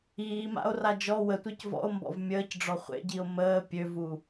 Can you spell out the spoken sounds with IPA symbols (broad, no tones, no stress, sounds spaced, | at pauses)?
iː m a̰ o̯ r a d͡ʒ ɔ w ə tʷ e c v ɔ̰ o̯ m b ɔ̰ v mʲ əː c ɖ͡ʐ ɔ χʷ ḛ ɟ i o̯ m əː pʲ ø v u